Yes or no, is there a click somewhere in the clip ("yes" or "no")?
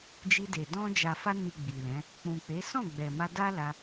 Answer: no